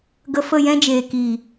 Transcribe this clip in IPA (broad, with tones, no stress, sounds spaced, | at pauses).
ɡ ə˧ f ə˦˨ j ɛ̃˦ d͡ʒ eː˨ k iː˨